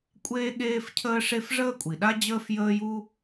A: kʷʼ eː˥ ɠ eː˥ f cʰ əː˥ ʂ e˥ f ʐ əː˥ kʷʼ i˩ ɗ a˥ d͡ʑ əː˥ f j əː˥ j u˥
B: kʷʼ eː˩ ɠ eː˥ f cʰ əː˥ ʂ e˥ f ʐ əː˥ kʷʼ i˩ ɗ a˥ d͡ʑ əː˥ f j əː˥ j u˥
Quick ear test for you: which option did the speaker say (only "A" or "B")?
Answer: A